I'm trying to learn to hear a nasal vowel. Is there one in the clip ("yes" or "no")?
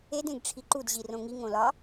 yes